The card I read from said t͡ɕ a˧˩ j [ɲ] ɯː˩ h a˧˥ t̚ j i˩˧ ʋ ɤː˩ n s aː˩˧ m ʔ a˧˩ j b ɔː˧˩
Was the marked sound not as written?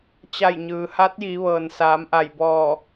no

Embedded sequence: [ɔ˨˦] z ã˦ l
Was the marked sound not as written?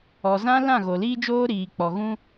yes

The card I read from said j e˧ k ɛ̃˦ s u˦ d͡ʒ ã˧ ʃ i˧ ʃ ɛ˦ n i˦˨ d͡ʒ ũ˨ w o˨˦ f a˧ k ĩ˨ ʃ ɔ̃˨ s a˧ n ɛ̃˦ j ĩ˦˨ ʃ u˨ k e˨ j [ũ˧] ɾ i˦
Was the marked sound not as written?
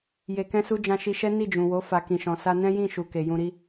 no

